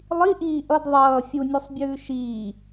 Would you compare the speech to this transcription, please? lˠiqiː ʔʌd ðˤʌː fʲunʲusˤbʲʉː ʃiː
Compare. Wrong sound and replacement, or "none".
q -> ʔ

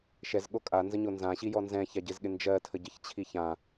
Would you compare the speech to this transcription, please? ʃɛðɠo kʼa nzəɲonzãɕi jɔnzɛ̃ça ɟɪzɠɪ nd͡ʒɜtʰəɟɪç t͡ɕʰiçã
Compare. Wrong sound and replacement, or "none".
ð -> z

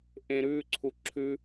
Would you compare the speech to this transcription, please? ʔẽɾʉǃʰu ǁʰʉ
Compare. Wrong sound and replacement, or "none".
ǃʰ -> ǀʰ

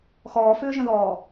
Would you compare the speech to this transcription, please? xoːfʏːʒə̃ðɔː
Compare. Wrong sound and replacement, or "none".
oː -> ɔː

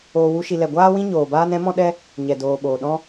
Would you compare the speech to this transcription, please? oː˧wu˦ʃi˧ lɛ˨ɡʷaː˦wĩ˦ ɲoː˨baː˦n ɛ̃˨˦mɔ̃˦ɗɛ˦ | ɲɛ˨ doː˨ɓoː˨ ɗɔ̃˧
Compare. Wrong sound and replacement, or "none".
none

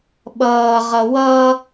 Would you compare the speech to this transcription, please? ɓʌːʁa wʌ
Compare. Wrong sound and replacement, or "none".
a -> ʌ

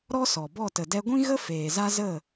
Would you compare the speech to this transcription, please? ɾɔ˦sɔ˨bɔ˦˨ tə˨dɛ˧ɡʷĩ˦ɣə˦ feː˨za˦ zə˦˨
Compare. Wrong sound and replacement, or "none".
none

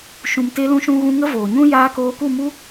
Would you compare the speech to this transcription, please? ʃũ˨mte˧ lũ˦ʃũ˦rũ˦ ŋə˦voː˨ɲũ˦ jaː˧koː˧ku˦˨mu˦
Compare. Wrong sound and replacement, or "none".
r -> ɣ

